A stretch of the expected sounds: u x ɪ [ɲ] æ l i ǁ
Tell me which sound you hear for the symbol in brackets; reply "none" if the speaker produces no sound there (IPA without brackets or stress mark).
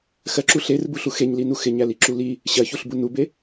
ɲ